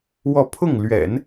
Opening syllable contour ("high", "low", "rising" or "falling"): falling